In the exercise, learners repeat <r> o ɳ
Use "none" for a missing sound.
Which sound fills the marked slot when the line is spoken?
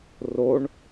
r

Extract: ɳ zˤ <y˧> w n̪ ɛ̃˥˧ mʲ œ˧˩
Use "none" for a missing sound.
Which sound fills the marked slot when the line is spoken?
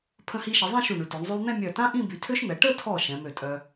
y˧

